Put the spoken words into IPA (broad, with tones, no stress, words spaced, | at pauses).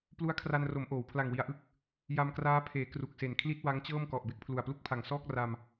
plu˦˥a̯kʰra˧nro˩˦m ʔoː˩˦w pʰla˨˩ŋwi˨˩a̯ʔɯ˥˩k̚ | ja˧mkraː˦˥pʰeː˩˦ kru˨˩k̚se˨˩n kʰli˥˩t̚wa˦˥ŋt͡ɕɤː˥˩mkɔ˨˩ʔ be˦˥k̚pʰlu˨˩a̯plu˥˩k̚pʰa˨˩ŋ sɔː˥˩k̚ ra˧m